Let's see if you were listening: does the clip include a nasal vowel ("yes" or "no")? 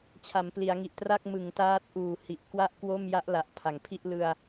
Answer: no